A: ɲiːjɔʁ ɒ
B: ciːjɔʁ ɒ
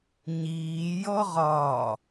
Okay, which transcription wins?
A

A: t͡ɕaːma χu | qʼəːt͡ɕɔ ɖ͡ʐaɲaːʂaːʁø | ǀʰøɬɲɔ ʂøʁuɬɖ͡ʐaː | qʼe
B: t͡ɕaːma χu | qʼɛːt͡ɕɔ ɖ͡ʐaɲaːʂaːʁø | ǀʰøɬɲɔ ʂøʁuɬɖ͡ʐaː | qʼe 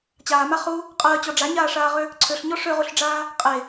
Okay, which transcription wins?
A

